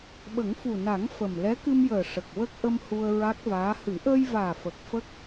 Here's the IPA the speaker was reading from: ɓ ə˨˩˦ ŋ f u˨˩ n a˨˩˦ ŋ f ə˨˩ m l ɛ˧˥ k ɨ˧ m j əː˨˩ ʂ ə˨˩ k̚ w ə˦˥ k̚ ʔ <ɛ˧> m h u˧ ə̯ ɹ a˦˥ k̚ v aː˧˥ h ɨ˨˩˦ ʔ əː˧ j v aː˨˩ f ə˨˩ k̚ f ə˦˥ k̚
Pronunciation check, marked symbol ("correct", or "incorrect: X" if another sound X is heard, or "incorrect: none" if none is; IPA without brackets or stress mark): incorrect: ə˧